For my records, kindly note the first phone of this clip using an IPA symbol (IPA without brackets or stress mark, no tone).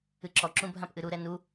ɨ